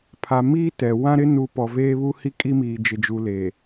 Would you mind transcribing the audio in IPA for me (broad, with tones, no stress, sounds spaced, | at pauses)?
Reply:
pʰ a˨ m iː˦ t ɛ˨ w ã˦ ɾ ɪ˦ n u˨ p ɔ˨ v eː˦ β u˦ h i˦ kʼ i˦ m iː˨ d͡ʒ ɪ˨ d͡ʒ u˨ l eː˨